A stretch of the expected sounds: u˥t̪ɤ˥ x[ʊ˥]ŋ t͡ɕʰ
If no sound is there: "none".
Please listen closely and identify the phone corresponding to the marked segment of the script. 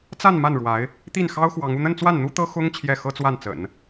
ʊ˥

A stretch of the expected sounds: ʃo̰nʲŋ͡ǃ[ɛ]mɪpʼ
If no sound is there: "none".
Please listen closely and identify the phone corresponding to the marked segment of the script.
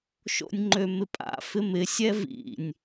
ø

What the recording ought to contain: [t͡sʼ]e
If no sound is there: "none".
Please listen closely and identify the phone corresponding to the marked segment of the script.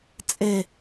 t͡sʼ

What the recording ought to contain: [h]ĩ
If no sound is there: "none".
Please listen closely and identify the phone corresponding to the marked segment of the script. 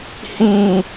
h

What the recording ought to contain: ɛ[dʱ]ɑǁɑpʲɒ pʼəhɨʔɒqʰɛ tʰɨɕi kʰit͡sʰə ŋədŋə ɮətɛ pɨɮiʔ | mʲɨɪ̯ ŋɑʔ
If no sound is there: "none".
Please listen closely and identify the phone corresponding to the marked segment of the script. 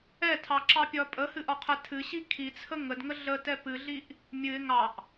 tʰ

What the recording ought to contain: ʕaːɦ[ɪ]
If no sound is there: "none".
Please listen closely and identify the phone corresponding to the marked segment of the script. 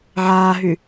y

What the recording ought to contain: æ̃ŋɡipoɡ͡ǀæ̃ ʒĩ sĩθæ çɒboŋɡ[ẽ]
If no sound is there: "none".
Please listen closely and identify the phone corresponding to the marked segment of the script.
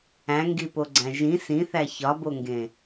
ẽ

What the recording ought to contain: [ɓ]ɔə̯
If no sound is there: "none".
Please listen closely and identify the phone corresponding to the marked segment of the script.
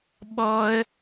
ɓ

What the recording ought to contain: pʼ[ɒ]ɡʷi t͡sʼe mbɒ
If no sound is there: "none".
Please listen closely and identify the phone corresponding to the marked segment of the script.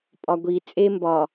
ɒ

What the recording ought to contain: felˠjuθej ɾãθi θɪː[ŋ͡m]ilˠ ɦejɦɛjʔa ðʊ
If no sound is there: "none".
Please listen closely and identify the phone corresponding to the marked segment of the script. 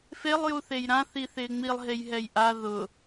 ŋ͡m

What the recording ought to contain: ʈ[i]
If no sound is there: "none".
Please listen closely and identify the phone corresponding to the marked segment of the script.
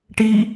i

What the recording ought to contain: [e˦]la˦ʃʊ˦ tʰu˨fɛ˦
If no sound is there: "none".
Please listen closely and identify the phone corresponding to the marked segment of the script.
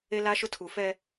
e˦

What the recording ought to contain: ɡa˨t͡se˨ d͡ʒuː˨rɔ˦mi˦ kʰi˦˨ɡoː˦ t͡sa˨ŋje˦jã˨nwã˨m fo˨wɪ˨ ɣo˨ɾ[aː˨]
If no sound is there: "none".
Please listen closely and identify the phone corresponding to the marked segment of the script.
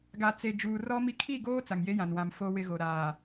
aː˨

